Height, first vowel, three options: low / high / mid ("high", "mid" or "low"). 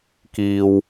high